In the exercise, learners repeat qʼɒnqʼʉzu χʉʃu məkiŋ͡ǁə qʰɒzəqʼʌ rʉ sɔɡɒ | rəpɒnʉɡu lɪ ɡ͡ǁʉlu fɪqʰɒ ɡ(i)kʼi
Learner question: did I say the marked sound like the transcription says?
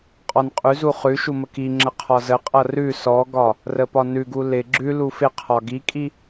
yes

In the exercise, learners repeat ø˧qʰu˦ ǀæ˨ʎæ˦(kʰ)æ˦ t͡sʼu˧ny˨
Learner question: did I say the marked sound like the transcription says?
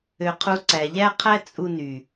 no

